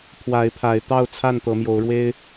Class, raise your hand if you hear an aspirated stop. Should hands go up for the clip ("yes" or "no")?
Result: yes